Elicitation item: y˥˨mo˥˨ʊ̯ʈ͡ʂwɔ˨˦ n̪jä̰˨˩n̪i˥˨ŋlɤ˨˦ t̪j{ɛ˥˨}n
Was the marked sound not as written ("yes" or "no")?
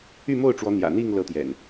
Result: yes